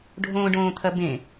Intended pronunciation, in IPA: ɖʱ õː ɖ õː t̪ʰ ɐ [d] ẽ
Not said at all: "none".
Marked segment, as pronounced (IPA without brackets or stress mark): b